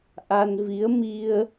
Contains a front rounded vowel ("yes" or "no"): no